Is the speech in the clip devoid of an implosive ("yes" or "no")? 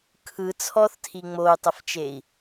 yes